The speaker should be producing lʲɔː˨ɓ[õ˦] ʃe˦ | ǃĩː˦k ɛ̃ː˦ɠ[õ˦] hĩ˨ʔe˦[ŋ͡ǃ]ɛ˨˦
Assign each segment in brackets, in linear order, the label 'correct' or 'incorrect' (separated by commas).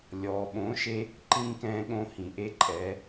incorrect, correct, incorrect